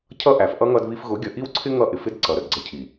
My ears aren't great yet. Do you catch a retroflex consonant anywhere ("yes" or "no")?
no